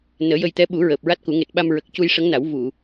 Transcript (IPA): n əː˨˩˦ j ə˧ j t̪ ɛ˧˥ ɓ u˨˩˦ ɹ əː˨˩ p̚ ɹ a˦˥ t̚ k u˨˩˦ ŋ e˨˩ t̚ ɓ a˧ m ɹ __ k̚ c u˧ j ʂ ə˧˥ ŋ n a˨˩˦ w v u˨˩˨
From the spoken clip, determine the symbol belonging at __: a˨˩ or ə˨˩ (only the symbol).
ə˨˩